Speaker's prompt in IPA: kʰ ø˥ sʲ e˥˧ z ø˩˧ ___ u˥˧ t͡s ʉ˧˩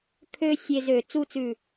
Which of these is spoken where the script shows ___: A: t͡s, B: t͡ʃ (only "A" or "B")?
A